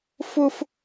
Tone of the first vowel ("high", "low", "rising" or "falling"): high